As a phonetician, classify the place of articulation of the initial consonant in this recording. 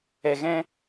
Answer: velar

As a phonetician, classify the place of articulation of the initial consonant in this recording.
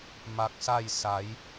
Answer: labial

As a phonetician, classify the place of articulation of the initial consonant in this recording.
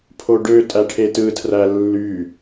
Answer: labial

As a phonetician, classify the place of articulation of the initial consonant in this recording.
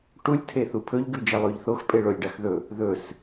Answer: retroflex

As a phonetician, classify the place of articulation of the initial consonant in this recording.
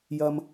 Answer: palatal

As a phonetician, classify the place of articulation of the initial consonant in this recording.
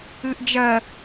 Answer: glottal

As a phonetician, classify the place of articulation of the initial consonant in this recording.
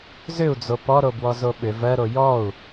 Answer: alveolar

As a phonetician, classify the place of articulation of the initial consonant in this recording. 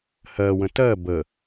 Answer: glottal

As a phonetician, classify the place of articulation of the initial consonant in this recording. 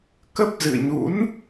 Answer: velar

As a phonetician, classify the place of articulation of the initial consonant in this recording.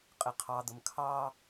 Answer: uvular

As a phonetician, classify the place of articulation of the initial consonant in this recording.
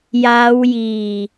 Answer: palatal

